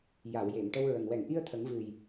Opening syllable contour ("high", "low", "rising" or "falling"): low